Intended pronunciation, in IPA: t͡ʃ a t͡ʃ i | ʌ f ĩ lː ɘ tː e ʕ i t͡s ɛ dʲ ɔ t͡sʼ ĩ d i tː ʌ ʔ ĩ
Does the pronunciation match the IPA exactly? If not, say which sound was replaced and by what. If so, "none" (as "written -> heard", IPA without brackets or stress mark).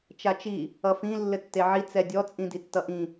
none